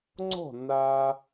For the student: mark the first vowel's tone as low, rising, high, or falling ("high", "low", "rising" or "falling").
falling